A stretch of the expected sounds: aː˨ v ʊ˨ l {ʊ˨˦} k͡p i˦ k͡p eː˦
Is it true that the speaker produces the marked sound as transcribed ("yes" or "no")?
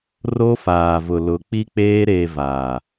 yes